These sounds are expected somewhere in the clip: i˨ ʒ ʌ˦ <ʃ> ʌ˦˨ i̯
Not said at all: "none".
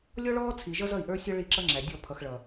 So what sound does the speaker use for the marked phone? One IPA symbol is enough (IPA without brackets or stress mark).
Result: z